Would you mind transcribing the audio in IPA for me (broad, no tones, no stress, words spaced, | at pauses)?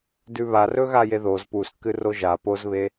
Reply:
dʉβarɵɣa jeðoz puskːɨ roʒa pozβe